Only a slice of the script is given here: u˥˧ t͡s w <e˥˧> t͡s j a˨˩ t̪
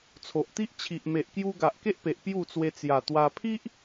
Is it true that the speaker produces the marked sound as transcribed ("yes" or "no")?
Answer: no